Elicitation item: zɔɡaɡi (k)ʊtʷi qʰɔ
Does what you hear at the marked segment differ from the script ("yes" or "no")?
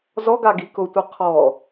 no